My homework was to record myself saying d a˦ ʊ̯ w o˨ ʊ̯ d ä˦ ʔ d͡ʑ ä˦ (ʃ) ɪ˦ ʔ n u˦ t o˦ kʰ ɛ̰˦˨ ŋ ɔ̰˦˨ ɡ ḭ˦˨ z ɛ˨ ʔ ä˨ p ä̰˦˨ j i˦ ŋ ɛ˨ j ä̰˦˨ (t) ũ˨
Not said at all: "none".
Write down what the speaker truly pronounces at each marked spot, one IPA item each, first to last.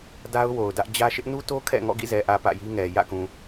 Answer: ʃ, k

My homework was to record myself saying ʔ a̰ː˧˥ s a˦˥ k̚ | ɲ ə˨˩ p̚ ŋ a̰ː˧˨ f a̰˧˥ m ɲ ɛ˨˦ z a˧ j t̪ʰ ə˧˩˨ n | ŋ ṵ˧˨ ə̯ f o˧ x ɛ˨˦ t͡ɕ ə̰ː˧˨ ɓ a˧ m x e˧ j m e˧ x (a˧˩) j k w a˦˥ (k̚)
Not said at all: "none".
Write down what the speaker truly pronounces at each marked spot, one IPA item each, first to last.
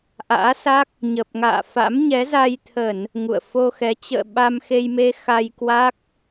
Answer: a˧, k̚

